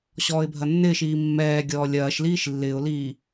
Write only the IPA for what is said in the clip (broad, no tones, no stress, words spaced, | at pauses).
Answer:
ɕɔːɪ̯bʱɐnːɪːʃiː mːɛːɡʲɔː lʲɐːʃliːʃ lːɪːʊ̯liː